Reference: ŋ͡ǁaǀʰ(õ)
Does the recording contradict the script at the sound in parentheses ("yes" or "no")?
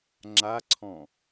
yes